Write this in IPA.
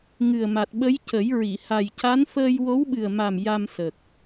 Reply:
ŋɨ˨˩ə̯ma˨˩t̚ ɓə˧˥jcə˨˩˦jɹi˨˩˨ ha˨˩jca˧˥nfəː˧j wo˧˥wɓɨ˨˩ə̯ma˨˩m ja˧msə˨˩k̚

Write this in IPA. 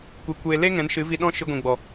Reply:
kʷe˦kʷeː˦ le˦ ŋɛ̃˨˦nʃɨ˨˦vi˧ɗɔ̃˦ ʃɨ˧ɡʷĩ˨ɡ͡bɔ˨

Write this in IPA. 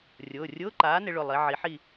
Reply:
rʲʊː˩˧˩rʲʊː˧˥˧ ǃaː˩˥nɪ˩˧ ɭʊ˩˧˩lˠi˩˧ ʕi˩˥ħi˦˨

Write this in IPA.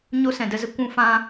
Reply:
ɲo˦sɛ̃˨də˦zə˦ kʷũ˦ fã˦

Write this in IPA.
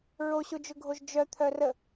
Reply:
ɹoɕod͡ʒʊɡʱoʒ d͡ʒœt̪ʰœ rə

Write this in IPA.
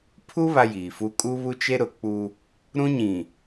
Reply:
pʰu˦ βa˦jiː˨fu˦ kʼu˦βu˦t͡ʃe˦ɾʊ˨ k͡pu˦ | ɾũ˦ɲĩ˨

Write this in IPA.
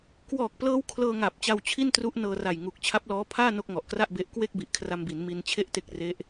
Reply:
kwɔː˨˩k̚plɤː˦˥w kʰlɤː˧ŋa˨˩p̚ t͡ɕa˧wt͡ɕʰi˥˩ntru˦˥ʔ nɤː˧ra˨˩jŋu˨˩k̚ t͡ɕʰa˦˥p̚lɔː˦˥pʰaː˥˩ no˥˩k̚ŋɔ˨˩ʔkra˥˩ʔbe˦˥ʔ kwe˥˩k̚bi˨˩ʔ kʰra˧mbi˩˦nmi˧n t͡ɕʰe˥˩ʔte˦˥k̚ re˦˥ʔ

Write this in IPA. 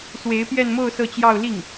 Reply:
swe˧˥ɪ̯pjɛ˥˧nmo˥˧ʊ̯ sɤ˥˧t͡ɕjɑ˥˧ʊ̯ li˥˩ŋ

